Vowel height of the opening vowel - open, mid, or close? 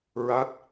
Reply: open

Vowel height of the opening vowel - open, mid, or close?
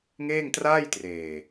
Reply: mid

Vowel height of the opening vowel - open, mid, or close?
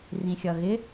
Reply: close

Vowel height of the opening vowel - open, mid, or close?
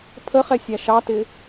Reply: mid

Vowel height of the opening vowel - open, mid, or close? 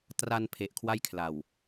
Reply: open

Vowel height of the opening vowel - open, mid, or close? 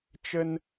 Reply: mid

